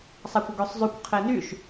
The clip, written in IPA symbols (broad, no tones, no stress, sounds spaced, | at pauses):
sˤ a kʷ ə ɡ ø sˤ zˤ y kʷ qʰ e n y ʃ